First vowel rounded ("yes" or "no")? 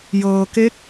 no